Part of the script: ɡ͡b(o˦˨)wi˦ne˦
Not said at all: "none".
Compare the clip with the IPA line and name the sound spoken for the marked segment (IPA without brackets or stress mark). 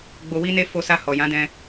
o˧